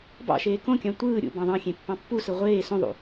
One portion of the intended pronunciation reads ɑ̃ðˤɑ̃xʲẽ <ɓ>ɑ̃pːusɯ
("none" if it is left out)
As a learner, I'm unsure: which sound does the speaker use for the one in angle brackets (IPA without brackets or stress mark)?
pː